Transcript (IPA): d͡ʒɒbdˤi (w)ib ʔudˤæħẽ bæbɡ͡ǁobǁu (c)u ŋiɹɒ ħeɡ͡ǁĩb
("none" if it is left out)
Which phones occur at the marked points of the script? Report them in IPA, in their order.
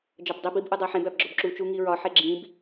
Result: b, t͡ʃ

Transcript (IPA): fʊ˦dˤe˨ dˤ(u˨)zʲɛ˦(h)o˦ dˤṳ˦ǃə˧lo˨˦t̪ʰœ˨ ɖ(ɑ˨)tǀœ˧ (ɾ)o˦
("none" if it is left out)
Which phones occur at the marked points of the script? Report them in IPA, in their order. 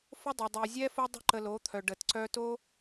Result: y˨, f, ə˨, t

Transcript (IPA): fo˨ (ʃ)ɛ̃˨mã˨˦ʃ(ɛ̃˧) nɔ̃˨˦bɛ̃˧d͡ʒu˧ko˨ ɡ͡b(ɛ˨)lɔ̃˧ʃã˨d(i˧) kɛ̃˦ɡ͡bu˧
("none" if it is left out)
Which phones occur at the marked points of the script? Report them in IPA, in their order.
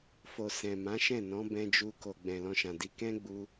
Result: s, ɛ̃˦˨, ɛ̃˨, i˧

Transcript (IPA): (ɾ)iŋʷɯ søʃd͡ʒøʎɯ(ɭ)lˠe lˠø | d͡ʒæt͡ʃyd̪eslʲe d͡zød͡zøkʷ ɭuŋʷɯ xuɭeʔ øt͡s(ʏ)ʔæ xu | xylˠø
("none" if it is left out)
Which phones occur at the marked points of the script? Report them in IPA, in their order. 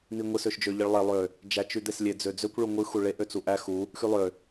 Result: n̪, ɭ, u

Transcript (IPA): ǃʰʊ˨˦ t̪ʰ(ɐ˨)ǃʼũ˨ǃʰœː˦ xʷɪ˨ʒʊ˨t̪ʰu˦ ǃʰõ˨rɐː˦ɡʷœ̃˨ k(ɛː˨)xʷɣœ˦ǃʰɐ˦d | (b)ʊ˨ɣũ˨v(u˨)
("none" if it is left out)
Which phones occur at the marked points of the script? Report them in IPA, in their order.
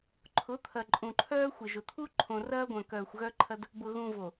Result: ɐ˨, œː˨, b, o˨

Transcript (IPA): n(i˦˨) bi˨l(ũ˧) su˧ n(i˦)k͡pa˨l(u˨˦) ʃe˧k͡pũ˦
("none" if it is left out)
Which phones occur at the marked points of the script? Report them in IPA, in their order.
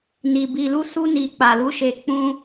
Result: i˨, u˧, i˨, u˨˦

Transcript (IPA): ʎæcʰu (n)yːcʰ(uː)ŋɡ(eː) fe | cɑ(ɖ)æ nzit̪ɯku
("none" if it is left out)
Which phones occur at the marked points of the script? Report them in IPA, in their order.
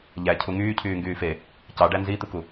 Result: ŋ, yː, yː, ɖ

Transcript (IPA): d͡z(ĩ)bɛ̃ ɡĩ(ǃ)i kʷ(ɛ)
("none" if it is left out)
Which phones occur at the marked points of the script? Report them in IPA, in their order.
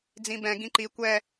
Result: ĩ, ǃ, ɛ

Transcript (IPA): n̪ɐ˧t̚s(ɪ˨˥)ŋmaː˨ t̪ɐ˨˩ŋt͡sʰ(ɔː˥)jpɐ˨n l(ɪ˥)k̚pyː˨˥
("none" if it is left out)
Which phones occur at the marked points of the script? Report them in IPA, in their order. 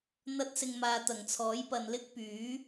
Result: ɪ˨, ɔː˨˥, ɪ˥

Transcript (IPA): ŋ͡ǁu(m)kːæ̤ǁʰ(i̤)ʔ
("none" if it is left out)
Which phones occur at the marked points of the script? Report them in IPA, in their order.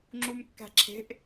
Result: m, e̤

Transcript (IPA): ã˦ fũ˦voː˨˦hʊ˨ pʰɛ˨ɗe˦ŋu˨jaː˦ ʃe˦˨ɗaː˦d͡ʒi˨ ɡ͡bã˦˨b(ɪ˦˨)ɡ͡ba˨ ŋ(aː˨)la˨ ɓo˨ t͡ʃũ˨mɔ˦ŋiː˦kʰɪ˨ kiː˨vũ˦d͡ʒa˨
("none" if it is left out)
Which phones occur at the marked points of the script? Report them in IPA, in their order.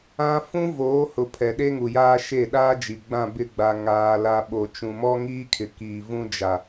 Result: ɪ˦˨, aː˨

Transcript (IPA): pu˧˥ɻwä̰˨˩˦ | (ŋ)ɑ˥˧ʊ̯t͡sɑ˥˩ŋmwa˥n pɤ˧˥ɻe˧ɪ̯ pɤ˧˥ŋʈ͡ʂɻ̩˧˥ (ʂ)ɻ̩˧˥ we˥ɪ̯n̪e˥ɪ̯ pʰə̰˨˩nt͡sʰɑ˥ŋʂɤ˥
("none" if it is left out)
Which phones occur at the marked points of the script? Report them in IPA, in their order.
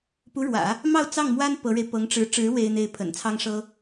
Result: m, ʈ͡ʂ

